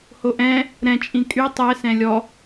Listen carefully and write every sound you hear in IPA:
hoʔɛ̃ | ɾɛ̃t͡ʃʼĩ kʼy tˤɛsɛ̃ lʲɔ

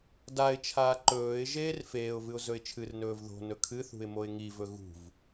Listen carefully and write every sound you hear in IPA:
daɪ̯t͡ʃʰaː ǃɵːɪ̯ ʒeːrfeːʊ̯vɨʊ̯ zɵɪ̯t͡ʃʰɨrnɵːv ðo̤nɵ kʰɨθṳɪ̯ moɪ̯ŋivɵ ɣṳv

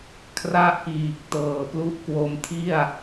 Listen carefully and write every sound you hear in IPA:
kʰra˥˩ʔkiː˨˩k̚ tɤː˨˩plu˦˥ʔkwo˧mtʰi˥˩a̯

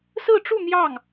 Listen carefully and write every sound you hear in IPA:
sɹ̩˥˧ʈ͡ʂu˥˧ n̪jɑ˥˩ŋ

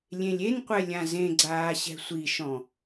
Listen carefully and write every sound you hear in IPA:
lʲẽlʲenqʷɛ lʲãzẽɡ͡ǀaː ɕɛ̤sʷiʃɔ̃

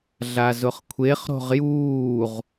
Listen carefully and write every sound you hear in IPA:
ɮazʊχkʷʰeχ ɾo̤ʁjuːʁ

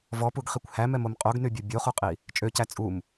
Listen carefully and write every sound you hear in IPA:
vɔpuɡχikʷ hæmɛmom qʼoɡnybʲu bʲoχuqʼi | t͡ʃʼøcæ t͡sʼum

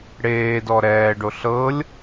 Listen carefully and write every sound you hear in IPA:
ɽeːdɔ ɾɛːɖo ɬɤlʲ

